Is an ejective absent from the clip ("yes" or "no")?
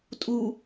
no